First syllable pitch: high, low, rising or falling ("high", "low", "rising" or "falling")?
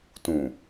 low